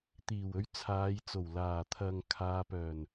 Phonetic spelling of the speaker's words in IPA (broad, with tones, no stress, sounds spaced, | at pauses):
t̪ iː˨˩ w ɵ˧ ɥ t͡sʰ aː˨˧ j t͡s o˨˩ w l aː˨˩ t̪ʰ ɐ˨ ŋ kʰ aː˨˧ p œː˨˩ n